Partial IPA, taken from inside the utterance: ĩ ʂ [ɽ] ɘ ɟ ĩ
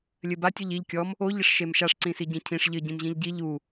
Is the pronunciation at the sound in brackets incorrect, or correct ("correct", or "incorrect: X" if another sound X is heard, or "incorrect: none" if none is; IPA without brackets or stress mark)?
incorrect: ʎ